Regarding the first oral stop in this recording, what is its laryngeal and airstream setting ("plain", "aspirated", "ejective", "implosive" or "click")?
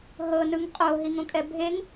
ejective